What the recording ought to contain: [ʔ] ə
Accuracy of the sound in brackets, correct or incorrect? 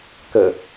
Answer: incorrect